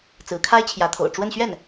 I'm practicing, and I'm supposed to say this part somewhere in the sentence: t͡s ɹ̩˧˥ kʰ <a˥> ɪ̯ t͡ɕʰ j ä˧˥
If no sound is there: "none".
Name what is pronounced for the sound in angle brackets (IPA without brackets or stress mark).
a˥